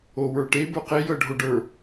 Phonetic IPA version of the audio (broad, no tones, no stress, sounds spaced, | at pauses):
o w ə˞ ʈ e b ə˞ q e j ɤ ɖʱ o ɖ ə˞